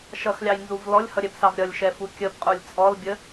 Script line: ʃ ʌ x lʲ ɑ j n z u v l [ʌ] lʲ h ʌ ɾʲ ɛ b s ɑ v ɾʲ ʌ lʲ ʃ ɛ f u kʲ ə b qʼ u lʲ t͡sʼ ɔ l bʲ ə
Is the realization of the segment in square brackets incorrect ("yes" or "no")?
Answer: yes